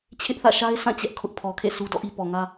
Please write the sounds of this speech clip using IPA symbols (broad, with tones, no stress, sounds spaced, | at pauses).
t͡ɕʰ ɪ˦ ʔ θ ä̰˦˨ ʃ a˦ ɪ̯ sʰ ã˦˨ t͡ɕ ɛ˦ ʔ kʰ ʊ˦ ʔ pʰ ɔ˨ kʰ ḛ˦˨ sʰ u˦ d ɔ̰˦˨ ʔ i˦ p ɔ˨ ŋ ä˦